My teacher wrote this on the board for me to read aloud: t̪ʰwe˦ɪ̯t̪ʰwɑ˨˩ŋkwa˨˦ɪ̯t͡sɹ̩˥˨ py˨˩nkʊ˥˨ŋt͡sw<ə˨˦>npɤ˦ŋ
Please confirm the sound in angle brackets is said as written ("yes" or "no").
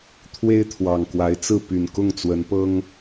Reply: yes